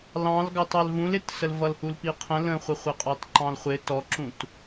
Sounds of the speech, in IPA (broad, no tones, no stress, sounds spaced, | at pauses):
l ɑ̃ l ɡ ɑ t ɑ l v ũ l ɪ t s ə l v ʌ l h u l p i qʰ ə̃ l ə̃ χʷ ə χʷ ə qʼ ɑ t ǃ ɑ̃ l χʷ ɪ t ɔ ǁ ũ t